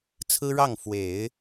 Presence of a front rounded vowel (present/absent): absent